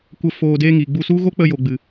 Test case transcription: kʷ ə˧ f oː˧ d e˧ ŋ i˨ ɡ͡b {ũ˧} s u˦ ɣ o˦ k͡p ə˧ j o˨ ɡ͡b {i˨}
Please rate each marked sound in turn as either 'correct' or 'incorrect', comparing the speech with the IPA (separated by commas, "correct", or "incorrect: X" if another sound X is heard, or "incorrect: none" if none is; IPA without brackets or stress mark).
incorrect: u˧, incorrect: ɨ˨